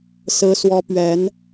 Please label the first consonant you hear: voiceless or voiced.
voiceless